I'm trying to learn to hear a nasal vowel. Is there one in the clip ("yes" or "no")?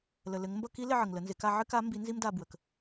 no